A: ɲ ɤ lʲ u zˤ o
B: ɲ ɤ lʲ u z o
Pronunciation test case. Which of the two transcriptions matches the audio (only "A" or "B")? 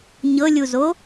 B